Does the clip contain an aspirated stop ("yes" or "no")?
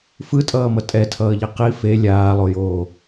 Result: yes